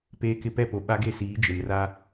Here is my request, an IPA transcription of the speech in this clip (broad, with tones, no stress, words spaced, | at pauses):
peː˦kɪ˦ pɛ˦˨po˨ ɓa˦ɡe˦˨siː˨˦ d͡ʒɪ˨mra˦